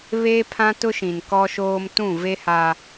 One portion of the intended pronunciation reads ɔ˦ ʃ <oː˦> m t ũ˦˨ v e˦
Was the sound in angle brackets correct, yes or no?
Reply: yes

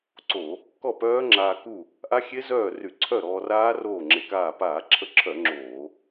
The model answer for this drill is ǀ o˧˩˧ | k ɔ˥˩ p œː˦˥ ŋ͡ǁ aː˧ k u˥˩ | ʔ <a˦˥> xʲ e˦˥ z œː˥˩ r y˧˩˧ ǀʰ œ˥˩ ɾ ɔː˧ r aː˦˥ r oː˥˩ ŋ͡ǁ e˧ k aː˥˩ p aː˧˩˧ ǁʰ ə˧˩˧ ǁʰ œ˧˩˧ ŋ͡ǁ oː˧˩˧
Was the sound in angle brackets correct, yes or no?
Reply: yes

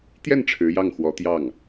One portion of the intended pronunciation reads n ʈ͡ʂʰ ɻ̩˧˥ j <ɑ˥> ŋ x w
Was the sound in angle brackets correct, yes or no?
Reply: no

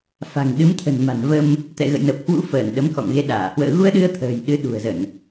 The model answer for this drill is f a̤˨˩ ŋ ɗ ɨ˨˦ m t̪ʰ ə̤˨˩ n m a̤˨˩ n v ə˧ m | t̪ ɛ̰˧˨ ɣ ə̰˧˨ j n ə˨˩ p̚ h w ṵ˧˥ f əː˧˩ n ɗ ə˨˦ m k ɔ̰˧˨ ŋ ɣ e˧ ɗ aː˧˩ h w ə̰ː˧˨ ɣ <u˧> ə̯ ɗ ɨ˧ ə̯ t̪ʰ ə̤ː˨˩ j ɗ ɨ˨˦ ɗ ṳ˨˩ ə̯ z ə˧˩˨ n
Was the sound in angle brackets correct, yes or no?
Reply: yes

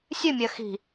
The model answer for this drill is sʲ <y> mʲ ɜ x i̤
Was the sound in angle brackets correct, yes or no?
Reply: no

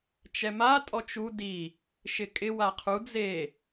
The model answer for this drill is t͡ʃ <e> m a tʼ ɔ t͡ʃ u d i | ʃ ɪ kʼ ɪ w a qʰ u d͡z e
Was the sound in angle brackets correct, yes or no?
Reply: no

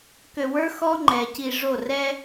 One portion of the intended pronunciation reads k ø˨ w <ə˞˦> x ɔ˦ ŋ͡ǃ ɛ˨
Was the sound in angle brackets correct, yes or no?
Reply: yes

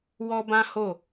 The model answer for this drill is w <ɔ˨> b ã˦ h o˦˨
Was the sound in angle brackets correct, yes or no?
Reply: no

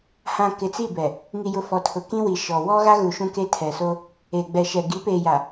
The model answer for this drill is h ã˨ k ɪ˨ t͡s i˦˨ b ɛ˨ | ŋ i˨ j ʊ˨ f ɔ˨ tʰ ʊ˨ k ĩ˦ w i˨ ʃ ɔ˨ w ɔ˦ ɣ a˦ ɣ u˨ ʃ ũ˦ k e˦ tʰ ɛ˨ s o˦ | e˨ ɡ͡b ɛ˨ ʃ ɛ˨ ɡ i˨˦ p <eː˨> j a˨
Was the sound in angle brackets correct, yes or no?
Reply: yes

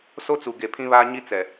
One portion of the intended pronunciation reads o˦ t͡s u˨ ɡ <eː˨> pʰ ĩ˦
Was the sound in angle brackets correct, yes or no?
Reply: no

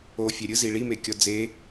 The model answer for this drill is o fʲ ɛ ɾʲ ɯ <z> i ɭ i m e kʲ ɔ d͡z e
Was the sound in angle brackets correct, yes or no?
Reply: yes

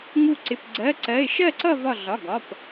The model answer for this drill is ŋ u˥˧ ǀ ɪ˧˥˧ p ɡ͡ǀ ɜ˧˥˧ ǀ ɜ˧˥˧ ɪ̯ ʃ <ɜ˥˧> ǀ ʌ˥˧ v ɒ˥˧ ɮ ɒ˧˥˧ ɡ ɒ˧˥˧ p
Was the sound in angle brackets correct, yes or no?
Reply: yes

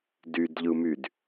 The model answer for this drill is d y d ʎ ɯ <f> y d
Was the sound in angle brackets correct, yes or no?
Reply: no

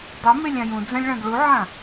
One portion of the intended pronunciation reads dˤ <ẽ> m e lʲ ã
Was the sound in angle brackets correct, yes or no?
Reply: no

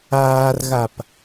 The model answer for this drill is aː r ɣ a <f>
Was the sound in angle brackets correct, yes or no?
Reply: no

